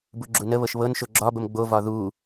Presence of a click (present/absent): present